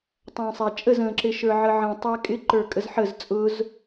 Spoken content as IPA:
tˤ æ̃ sˤ æ t͡ʃʼ ə z ə̃ ǁ ɪ ʃ ə˞ ʕ ə ʕ ə̃ tˤ æ kʼ ɪ ǃ ə˞ kʼ ə z ħ ə z t͡sʼ ʊ z

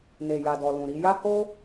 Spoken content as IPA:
n e˨ j a˨ d ɔ˨ l ũ˨ ɾ i˧ j a˦ h o˦

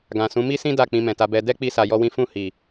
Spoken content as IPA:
ɡ ã˨ s ũ˨˦ m i˦ s ĩ˦ d a˦˨ k͡p ĩ˧ m ɛ̃˨ t a˧ b ɛ˧ d ɛ˦ k͡p i˦ s a˧ j ɔ˦ w ĩ˦ f ũ˦˨ h i˨

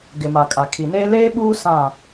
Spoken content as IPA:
ɡ ɪ˨ m a˨ kʼ a˨ kʰ i˨ n eː˦ l eː˦ ɓ uː˦ s ã˦˨

